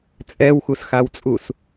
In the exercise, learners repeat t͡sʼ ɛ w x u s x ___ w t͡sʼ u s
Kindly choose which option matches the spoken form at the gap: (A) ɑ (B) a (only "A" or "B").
B